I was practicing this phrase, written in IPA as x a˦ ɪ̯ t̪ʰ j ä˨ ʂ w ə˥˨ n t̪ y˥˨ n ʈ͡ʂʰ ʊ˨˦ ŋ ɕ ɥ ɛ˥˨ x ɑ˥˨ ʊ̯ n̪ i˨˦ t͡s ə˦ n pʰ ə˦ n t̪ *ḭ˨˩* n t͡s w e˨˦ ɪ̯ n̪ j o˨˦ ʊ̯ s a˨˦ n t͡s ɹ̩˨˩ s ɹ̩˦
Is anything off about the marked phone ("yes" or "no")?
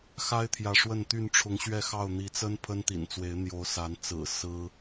no